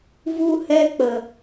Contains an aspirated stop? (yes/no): no